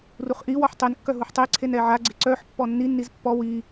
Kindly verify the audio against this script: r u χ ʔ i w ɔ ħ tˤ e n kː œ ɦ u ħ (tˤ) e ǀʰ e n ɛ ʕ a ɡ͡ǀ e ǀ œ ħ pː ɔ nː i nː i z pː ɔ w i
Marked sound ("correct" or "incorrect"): correct